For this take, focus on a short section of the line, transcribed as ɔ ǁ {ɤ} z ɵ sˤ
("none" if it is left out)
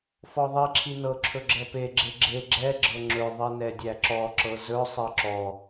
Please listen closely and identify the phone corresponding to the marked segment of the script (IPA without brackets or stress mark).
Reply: ɤ